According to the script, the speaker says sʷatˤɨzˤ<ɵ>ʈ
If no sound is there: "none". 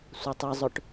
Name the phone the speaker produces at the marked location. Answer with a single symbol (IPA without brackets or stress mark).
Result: ɵ